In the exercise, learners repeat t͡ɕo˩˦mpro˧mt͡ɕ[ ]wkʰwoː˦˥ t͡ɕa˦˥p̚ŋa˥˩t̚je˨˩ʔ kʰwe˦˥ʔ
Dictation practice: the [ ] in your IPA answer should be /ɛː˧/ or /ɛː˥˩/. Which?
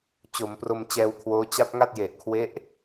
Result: ɛː˧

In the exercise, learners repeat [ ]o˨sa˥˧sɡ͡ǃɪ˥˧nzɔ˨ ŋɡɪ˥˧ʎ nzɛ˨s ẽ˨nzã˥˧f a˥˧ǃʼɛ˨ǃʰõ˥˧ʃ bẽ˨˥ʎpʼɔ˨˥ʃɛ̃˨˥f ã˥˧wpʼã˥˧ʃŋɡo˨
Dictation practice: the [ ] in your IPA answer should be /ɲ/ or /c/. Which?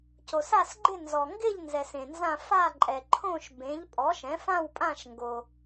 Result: c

